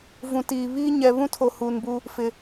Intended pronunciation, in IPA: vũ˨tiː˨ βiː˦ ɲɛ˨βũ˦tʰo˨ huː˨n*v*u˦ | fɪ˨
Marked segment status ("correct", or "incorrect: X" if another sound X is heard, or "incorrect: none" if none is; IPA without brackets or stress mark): incorrect: b